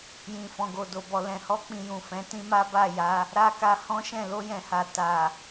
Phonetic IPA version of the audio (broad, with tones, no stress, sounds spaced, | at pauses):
j ĩ˨ f ɔ̃˨ ɡ o˨ d o˨ b ɔ˨ l ɛ̃˨ h ɔ˧ k͡p ĩ˨ j ũ˨ f ɛ̃˨˦ t ĩ˦ m a˦ b a˦˨ j a˨˦ | ɾ a˦ k a˧ h ɔ̃˦ ʃ ɛ̃˦˨ l o˧ j ɛ̃˨ h a˨ t a˨